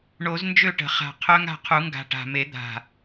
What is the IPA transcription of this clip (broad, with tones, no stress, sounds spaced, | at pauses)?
ɳ o˨˩˦ z n d͡ʒ ø˥˩ ʈ ə̤˨˩˦ χ a̤˨˩ qʰ œ˦˥ ŋ a̤˥˩ qʰ u˨˩˦ ŋ ɡ a̤˨˩ ʈ a̤˨˩ m e˨˩˦ d̪ a̤˨˩